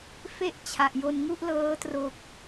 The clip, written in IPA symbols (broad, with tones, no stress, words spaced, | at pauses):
fe˥˩ʔ t͡ɕʰa˨˩ʔjo˧n ŋu˥˩ʔlɤː˦˥tro˨˩k̚